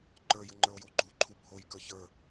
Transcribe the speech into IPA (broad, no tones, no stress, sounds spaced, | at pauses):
ǃ ə˞ j ə ŋ͡ǃ ə˞ o̯ j o ɡ͡ǃ u ǃʰ u bʱ o j k ə˞ ç ə˞